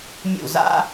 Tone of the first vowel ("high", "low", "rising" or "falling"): falling